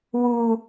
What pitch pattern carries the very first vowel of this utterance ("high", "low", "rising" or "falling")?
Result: high